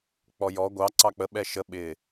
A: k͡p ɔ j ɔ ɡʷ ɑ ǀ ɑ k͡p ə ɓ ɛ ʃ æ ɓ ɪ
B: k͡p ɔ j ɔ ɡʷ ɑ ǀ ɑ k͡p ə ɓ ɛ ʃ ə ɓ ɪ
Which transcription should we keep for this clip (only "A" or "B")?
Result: B